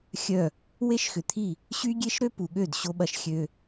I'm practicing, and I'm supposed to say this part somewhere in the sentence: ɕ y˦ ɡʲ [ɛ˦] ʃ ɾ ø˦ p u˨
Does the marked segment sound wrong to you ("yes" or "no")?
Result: yes